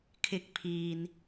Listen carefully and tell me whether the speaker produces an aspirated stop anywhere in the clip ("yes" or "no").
yes